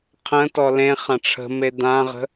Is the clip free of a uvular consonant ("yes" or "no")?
no